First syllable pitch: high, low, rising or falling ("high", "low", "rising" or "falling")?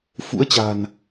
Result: rising